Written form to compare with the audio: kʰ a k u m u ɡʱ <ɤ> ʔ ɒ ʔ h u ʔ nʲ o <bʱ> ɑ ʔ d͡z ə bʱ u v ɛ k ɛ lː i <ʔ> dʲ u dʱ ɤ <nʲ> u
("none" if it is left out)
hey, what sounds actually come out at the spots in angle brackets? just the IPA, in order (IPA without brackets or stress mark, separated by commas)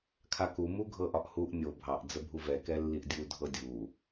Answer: ɤ, bʱ, ʔ, dʲ